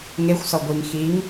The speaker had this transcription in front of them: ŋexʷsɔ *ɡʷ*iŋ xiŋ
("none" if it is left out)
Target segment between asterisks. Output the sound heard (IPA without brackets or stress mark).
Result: ɡʷ